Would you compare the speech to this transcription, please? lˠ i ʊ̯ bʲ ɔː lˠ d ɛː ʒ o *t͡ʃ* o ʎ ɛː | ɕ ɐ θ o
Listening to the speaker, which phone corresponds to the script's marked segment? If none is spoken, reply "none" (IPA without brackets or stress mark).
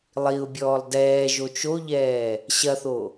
t͡ʃ